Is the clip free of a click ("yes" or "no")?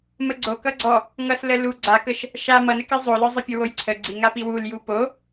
no